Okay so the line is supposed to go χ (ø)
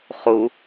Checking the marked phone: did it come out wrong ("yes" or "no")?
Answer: yes